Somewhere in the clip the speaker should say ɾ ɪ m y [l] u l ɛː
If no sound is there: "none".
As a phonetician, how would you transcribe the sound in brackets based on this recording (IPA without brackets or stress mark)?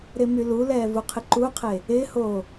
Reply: l